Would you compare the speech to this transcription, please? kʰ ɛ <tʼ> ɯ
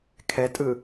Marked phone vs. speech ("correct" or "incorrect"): correct